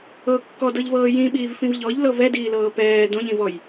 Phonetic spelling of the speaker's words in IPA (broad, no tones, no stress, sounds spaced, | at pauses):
ɤ kː ɔ d ɤ ʎ v ɤː j ĩ ɓ iː v f ĩ v ʎ ɔ ʎ l ɤ v ɛ d iː l ɤː p ɛː d õ ʎ ĩ v ɔ j